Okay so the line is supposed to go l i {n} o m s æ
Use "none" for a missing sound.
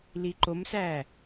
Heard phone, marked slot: ǃ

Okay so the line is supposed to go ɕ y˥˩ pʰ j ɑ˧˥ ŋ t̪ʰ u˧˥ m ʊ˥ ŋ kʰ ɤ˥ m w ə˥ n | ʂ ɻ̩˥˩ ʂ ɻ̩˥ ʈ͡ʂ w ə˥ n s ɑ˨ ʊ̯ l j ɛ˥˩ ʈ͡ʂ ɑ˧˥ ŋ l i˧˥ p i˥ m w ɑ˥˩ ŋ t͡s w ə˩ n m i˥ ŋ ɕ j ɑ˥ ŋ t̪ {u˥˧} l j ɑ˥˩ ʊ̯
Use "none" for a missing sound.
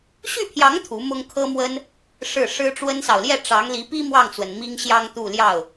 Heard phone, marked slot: u˥˧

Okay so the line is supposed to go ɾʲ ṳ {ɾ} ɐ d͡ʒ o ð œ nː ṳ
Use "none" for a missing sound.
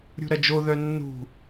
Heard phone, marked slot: ɾ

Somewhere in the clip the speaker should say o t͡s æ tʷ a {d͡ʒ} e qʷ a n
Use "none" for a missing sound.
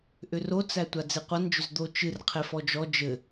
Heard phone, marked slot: d͡z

